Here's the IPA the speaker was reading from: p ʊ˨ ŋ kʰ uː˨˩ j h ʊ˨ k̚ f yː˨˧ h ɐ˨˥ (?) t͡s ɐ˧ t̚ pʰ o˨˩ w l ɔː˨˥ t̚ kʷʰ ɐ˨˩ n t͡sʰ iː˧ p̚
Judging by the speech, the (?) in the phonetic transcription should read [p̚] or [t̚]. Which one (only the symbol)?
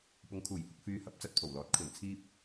p̚